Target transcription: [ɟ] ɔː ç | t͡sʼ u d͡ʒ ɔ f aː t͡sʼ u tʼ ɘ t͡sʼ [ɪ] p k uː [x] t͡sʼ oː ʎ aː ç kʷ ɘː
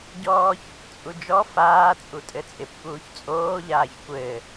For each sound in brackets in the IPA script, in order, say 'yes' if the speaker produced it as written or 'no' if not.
yes, yes, no

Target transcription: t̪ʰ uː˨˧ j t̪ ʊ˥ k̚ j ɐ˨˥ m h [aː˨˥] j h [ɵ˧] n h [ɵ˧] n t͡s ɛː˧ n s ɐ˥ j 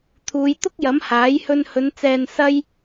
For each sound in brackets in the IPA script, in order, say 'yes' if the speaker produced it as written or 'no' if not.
yes, yes, no

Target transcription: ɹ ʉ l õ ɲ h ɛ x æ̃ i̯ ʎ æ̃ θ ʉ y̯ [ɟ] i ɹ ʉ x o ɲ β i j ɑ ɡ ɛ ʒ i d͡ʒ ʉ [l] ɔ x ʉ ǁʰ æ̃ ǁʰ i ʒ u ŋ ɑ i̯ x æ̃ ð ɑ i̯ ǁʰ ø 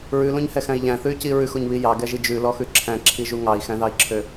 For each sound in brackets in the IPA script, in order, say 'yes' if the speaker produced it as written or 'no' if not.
no, yes

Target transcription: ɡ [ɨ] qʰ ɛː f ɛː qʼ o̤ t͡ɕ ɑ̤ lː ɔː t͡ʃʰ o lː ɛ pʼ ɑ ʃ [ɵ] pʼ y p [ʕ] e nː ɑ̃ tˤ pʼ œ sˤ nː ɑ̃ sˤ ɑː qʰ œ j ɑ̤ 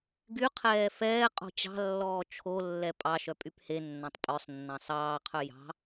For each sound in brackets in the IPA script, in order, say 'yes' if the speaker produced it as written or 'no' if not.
no, no, no

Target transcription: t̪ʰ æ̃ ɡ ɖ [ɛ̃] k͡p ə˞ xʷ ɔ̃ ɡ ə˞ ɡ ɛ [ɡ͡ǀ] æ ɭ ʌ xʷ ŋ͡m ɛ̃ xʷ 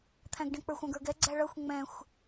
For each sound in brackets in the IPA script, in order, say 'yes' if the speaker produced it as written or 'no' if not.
yes, yes

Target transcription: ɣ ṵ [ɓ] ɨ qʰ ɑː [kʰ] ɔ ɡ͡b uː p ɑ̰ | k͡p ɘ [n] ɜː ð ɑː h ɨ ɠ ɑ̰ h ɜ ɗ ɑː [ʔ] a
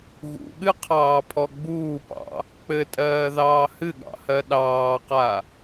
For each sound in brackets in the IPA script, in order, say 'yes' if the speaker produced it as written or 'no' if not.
no, no, no, no

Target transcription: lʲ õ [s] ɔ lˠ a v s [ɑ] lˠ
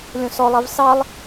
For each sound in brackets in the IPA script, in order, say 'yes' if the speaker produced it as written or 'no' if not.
yes, yes

